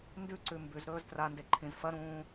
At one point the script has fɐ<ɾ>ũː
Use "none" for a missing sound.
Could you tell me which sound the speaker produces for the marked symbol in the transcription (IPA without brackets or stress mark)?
ɾ